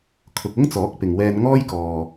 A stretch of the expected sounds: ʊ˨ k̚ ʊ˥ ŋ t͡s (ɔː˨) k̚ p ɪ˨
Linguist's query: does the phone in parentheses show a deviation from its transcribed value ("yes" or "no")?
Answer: yes